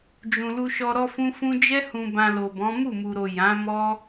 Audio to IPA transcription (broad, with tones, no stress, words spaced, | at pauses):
d͡ʒũ˨lu˧ʃɔ˧ ɾɔ˦fũ˦fũ˦ d͡ʒɛ˦ hũ˧bã˧lo˨bɔ̃˨˦ mu˦˨mu˨ɾo˨ jã˨˦ mɔ˦